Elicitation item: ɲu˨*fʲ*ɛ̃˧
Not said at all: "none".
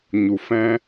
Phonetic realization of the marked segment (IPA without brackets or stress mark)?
f